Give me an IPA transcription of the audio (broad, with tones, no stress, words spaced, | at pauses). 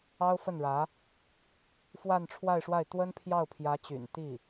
ɑ˥ʊ̯fə˥˩nɻä˧˥ | fwa˥˧nʈ͡ʂʰwa˥˧ɪ̯ʂwa˥˩ɪ̯ t̪wə˥npʰjɑ˥˩ʊ̯pʰjä˧˥t͡ɕy̰˨˩n t̪i˥˩